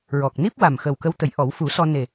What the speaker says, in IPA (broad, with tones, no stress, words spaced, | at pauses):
ɹɔ˨˩k̚ni˦˥p̚wa˨˩m xə˨˩wkə˧˥wt̪ə˨˩˦jʔɔ˨˩˦w fu˨˩˦sɔ˧ ne˨˩